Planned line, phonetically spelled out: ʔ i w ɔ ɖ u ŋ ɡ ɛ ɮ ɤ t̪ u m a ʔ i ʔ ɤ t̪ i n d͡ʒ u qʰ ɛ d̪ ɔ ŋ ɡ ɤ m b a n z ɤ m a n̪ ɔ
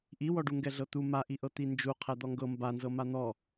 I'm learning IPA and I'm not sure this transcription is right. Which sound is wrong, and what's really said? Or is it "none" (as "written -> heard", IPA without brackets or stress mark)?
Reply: none